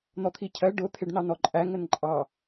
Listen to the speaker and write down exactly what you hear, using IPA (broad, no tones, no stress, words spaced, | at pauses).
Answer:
n̪ɔt̪ʰicʰɜ ɖʊ t̪ʰɪɖnɑnɔǃʼæ ŋənǃʼɑ